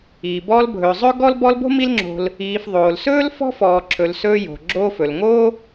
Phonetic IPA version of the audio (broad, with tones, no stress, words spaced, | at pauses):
iː˩bɔː˦l bʱɵː˩zˤɵː˥ɡɔ˥l bɔ˦lbo̤˥mi˦lŋ͡ǁo̤˨l | iː˨fðˤoː˩lsɵː˥l fɔ̤˥fɔː˨ǁʰɵ˨l sɵː˦jo̤˩ɡ͡ǁoː˦f ɵ˩lŋo˥